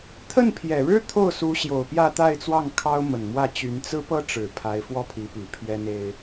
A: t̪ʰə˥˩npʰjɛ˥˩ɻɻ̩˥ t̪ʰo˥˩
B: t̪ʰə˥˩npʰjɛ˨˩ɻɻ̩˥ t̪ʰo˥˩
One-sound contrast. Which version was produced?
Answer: B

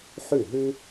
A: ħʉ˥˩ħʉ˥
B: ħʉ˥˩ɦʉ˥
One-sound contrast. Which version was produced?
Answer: B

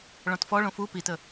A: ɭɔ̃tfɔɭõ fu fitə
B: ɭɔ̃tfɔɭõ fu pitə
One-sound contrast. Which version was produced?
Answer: B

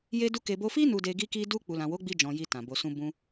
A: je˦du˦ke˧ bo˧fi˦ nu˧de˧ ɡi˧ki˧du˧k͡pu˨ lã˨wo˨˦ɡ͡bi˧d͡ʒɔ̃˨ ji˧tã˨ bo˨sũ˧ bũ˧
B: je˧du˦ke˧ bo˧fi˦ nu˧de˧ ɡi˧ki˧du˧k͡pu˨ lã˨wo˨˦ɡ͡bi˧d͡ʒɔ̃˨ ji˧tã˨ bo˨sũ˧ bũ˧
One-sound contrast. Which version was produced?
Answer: A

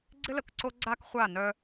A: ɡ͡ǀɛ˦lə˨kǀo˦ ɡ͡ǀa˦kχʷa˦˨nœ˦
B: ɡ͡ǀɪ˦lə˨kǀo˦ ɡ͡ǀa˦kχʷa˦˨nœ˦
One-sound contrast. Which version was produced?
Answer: B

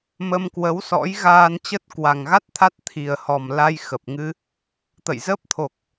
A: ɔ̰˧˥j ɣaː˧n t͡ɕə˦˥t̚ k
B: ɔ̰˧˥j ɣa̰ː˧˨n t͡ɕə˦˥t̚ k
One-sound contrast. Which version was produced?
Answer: A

